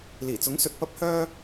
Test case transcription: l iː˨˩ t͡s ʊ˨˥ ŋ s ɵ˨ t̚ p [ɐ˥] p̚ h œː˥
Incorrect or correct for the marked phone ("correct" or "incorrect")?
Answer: correct